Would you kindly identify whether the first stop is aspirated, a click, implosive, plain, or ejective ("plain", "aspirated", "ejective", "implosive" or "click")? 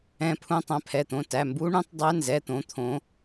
aspirated